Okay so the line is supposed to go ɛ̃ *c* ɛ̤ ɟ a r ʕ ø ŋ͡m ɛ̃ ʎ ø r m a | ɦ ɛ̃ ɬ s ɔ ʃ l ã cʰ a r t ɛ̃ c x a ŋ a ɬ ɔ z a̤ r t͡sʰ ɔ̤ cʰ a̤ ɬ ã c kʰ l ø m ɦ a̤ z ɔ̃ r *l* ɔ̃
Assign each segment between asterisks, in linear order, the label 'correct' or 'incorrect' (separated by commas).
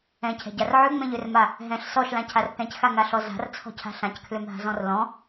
incorrect, correct